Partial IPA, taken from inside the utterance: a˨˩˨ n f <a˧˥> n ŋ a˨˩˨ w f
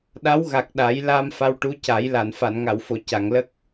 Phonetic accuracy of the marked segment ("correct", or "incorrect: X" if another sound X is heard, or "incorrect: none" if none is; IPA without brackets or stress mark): incorrect: a˨˩˨